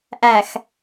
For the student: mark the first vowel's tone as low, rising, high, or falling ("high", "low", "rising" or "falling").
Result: low